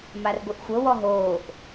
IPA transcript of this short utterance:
m a r ɡʷ e ʔ xʷ ɤ w ɔ ɦ oː ʔ

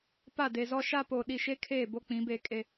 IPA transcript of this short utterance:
p a˦˨ d e˨ z ɔ˦ ʃ a˦ p o˨ ɗ i˨ ʃ e˦ kʰ eː˦˨ b o˦ k͡p ĩ˨˦ b e˦˨ kʼ e˦

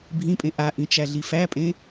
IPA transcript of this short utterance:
bʱ ĩ pʼ ẽ ʔ a ʔ ĩ t͡ʃ æ ɮ i f æ pʼ ẽ

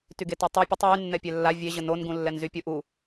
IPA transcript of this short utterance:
t y ɡ e t ɔ tˤ y pʲ ə tˤ w y nː ɛ pʲ ɛ lː a vʲ e ʑ ə n o n ɡ ũ lː ɛ n z y pʲ u ʔ u

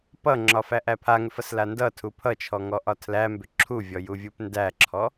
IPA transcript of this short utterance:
p ʌ ŋ͡ǁ ɒ f æ ʔ æ pʰ a ŋ ʏ f ʌ s l a n d ʌ tʰ u pʰ ʌ t͡ʃʰ ɔ ŋ ɔ ʔ ɒ tʰ l æ m b ʏ ǁʰ u vʲ ɔ j u vʲ u p n d æ ǁʰ ɔ

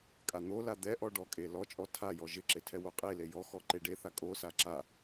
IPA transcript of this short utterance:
kʼ a n̪ o l a d̪ ɛ ʔ ɔ ɖ ɔ kʼ e l ɔ t͡ʃʼ ɔ tʰ a j ɔ ʒ ɪ ǁ e tʰ ɛ w o qʼ e l e j ɔ x ɔ ǃ e ɖ e θ a kʼ o s a ǁ a

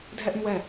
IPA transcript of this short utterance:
dʱ ɛ ʔ ĩ w ɛ

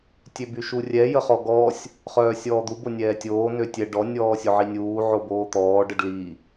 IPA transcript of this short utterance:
tʲ ø b y ʃ u rʲ ɛ j ə χ ɔ ɡ ɔ sʲ | χ œː sʲ ɔː d̪ u b o nʲ ɛː tʲ oː n ø tʲ ɛ ɖ ɔ nʲ ɔː sʲ o ʕ i nʲ uː ʕ o b oː t̪ ɔː ɖ ə ɖ l i

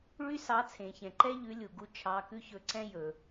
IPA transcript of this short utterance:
ɭ y˦ s ɑ˨˦ t͡sʰ ẽ˩ ç ɛ̃˩ ǃ ɛ˦ ʎ ʉ˨˦ lʲ u˩ ɡ u˦ t͡ʃʰ ɑ˩˧˩ k ʉ˦ ç ɵ˨˦ ǀ ɛ̃˦ j ɵ˩

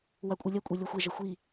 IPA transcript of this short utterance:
w a kʷʼ ɨ lʲ ɐ kʷʼ e lʲ ɔ xʷ e ʒ ɐ xʷ i

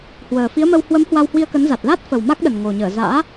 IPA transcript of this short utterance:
h w əː˨˩ f i˨˦ ə̯ m ə˧ w h w ə˨˦ m h w a˧ w h w i˧ ə̯ k ə˨˦ n z a˨˩ t̚ l a˦˥ t̚ f ə˨˩ w m a˦˥ k̚ ɗ ə˨˩ n ŋ o˨˩ ɲ əː˧˩ z a̰ː˧˥

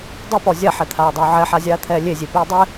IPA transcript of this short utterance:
dˤ e p ɔ zʲ a ħ ɛ t̪ʰ aː dˤ ʊː ʕ ɛ ħ a zʲ aː t̪ʰ ɛː lʲ e zʲ e p iː dˤ ɪ

